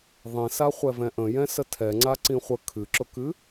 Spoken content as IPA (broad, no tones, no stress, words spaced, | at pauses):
ðˤĩsaχʷɛ vɛ̃ʔə̃jɛ̃ sətʰɛŋ͡ǀa ǀĩχʷə kʰɨǁʊkɨ